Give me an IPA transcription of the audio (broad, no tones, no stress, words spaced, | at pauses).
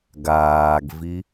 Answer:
ɡaːɡvi